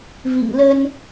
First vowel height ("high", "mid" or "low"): high